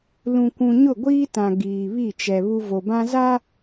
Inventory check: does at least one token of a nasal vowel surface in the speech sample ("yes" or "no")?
yes